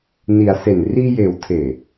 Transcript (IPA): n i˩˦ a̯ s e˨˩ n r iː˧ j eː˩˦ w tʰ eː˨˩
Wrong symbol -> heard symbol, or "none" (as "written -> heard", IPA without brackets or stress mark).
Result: none